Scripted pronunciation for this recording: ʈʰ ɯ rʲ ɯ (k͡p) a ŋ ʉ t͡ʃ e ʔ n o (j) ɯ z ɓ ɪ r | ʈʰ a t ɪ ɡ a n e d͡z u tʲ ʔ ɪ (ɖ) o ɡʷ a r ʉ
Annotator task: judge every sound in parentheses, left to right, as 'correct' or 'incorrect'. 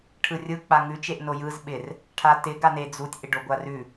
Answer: correct, correct, correct

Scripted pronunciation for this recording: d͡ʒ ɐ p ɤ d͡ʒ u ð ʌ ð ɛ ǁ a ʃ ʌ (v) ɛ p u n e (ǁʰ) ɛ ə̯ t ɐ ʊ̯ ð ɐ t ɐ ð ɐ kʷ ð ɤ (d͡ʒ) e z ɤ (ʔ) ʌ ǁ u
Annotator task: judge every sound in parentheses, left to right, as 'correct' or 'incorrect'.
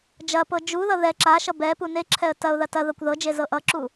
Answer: incorrect: b, correct, correct, correct

